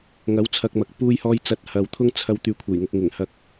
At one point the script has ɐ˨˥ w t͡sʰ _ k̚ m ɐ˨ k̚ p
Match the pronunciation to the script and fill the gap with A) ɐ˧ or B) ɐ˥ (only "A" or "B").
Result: A